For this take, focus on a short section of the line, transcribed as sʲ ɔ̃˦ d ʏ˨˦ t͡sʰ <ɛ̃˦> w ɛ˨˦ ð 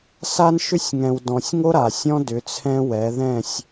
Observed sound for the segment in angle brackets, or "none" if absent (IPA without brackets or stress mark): ɛ̃˦